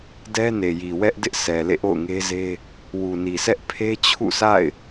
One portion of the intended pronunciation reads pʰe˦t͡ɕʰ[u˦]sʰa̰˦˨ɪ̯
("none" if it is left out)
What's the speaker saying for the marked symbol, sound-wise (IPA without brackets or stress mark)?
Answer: ṵ˦˨